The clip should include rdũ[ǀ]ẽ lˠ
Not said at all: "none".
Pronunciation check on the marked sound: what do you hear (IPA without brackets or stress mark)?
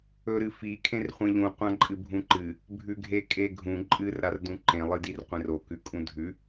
ǃ